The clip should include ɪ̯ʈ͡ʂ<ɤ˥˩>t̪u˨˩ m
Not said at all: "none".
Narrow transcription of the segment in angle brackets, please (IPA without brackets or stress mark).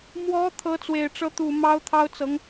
ɤ˧˥